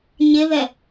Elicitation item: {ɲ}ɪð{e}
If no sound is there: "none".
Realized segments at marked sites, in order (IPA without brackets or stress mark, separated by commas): ɲ, ɛ